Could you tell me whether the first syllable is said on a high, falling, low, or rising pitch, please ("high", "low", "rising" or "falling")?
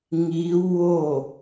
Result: rising